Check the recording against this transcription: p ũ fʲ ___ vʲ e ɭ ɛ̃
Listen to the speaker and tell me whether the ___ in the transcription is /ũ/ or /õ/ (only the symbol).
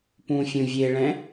ũ